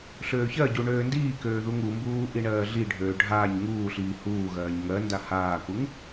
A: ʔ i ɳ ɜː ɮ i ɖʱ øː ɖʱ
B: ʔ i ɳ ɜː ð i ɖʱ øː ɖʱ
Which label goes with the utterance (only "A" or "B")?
A